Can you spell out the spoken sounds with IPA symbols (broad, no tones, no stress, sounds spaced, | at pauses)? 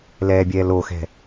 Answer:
l ɛː bʲ ɛː l o x ɛ̤